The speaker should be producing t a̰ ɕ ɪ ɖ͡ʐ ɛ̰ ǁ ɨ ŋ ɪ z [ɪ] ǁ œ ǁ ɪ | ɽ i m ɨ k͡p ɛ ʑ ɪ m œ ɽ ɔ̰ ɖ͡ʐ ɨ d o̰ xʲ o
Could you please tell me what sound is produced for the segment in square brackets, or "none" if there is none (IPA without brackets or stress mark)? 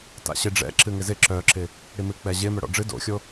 ɪ